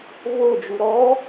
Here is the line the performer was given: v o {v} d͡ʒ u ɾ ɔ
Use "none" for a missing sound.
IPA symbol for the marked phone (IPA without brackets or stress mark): none